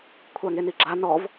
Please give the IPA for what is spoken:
kʷʰ a ŋ e n i ɡ͡ǁ a n ɔ v

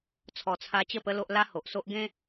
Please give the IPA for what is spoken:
t͡sʰ ɔ˨˩ t͡sʰ a˧ t͡ɕ ə˥˧ p ə˦ l o˦ ʔ l a˦ h o˨ ʔ s o˦ ʔ ɡ ẽ˦

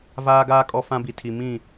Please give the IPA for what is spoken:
v aː˦ ɡ aː˦ kʼ ɔ˦ f ã˦ b i˨ tʰ i˨ m ĩ˦˨

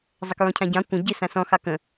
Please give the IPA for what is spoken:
zˤ ə k ɹ ɔ̃ cʰ ã ɟ ɑ̃ kʷ ə̃ ɟ ɪ s ã s ɔ̃ x ɑ k ə̃

